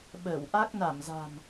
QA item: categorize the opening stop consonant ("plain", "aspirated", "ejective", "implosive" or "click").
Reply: implosive